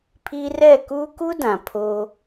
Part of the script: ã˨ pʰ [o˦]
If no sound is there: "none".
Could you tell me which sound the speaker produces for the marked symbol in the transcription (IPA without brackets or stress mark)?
o˦